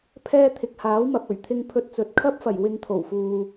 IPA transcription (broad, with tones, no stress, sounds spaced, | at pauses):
pʰ ɛː˥ t̪ʰ ɪ˨ k̚ h aː˨˥ w m ɐ˨ p̚ ɵ˨˩ ɥ t̪ʰ ɪ˧ ŋ pʰ ɵ˧ t̚ t͡s ɵ˨˥ t̚ kʰ ɐ˥ p̚ f ɐ˨˩ j w ɪ˧ ŋ t̪ʰ o˨˩ w f uː˨